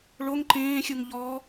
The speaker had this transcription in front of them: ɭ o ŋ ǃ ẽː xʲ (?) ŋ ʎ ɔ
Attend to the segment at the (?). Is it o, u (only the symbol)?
u